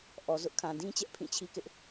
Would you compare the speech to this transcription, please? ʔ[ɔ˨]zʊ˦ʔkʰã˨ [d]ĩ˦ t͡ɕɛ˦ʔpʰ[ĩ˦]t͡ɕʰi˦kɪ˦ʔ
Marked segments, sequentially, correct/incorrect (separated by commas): correct, correct, incorrect